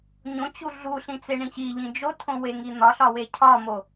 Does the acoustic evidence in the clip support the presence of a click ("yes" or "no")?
no